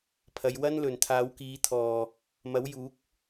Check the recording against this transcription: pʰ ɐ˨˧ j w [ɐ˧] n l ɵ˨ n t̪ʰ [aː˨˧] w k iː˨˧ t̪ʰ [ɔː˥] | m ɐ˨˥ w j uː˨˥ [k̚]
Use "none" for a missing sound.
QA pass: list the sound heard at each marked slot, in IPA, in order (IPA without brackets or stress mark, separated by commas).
ɐ˥, aː˨˧, ɔː˨, k̚